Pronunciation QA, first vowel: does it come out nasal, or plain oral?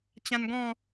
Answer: nasal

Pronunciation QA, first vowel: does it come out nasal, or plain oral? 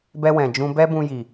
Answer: oral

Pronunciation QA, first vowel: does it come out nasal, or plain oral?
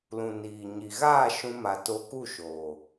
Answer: nasal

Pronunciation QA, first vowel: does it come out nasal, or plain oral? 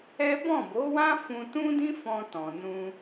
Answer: oral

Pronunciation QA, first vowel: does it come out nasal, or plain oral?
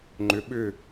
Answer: oral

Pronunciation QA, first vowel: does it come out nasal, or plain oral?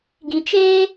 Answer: nasal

